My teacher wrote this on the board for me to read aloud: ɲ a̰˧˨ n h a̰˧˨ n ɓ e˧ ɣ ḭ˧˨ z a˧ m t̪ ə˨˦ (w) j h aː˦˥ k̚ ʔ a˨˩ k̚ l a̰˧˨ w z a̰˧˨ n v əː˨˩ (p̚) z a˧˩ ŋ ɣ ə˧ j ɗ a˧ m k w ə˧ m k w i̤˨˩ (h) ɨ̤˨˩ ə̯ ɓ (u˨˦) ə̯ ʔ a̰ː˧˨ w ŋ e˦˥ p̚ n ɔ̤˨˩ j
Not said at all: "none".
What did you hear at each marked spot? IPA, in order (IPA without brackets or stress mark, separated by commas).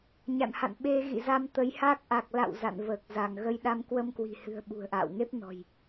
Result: none, k̚, h, ṳ˨˩